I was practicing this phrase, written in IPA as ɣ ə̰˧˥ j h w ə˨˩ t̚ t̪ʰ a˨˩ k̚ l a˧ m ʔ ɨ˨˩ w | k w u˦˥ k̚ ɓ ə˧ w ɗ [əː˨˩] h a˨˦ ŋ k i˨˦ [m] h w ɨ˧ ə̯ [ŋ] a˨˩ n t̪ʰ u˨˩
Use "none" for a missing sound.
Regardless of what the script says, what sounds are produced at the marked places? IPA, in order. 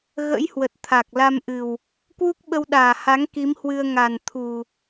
aː˨˩, m, ŋ

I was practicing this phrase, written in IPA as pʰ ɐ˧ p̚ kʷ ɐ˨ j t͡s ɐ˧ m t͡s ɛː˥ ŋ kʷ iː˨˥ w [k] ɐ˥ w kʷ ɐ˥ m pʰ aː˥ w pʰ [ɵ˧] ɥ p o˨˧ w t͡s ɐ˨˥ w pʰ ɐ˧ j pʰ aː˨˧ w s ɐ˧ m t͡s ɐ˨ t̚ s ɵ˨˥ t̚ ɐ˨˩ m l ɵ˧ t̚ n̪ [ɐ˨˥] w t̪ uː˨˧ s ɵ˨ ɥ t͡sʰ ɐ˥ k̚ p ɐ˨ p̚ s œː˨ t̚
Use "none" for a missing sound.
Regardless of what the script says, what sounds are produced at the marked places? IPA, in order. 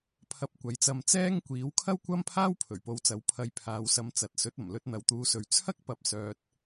kʰ, ɵ˨˩, ɐ˨

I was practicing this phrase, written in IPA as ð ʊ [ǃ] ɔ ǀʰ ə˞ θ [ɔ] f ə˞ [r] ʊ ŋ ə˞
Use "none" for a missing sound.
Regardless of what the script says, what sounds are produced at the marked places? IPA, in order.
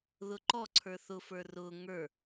ǃ, ʊ, r

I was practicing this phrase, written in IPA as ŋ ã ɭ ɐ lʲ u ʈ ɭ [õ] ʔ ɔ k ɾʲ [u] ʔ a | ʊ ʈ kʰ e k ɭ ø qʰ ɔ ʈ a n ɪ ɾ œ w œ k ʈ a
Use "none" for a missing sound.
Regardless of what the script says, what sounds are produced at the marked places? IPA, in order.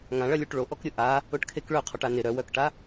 o, ʊ

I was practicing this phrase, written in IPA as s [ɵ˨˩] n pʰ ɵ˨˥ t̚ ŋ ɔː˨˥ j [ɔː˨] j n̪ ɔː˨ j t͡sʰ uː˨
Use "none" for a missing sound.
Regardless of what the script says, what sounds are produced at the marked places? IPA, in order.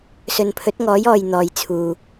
ɵ˨, ɔː˨

